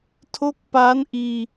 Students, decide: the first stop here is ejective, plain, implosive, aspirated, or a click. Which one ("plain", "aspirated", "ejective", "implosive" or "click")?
aspirated